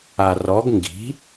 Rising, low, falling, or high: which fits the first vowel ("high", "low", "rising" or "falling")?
low